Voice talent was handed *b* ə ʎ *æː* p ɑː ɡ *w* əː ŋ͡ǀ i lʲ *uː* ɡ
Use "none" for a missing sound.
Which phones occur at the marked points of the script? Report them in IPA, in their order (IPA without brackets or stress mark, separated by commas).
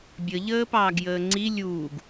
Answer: bʲ, əː, j, uː